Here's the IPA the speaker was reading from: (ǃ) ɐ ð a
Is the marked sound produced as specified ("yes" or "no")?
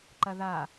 yes